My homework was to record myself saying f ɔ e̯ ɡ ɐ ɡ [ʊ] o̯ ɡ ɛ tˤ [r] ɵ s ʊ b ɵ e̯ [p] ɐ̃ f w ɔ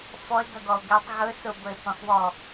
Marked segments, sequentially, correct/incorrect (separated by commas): incorrect, incorrect, correct